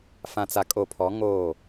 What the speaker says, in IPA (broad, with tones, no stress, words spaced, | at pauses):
fã˨t͡sa˨kʼo˨pʰɔ˨˦ ŋoː˦˨